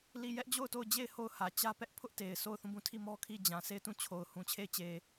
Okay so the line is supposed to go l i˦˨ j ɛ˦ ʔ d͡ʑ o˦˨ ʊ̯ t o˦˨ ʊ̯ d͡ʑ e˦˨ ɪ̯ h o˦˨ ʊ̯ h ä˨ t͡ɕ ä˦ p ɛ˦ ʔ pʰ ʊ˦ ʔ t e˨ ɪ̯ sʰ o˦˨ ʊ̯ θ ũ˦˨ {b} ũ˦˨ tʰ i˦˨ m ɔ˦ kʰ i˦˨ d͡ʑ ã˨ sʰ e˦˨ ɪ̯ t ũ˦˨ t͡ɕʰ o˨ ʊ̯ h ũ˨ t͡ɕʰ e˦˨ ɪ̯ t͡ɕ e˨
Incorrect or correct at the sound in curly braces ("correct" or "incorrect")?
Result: correct